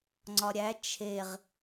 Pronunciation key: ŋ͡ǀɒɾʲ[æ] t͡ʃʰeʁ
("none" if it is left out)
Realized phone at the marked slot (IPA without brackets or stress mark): æ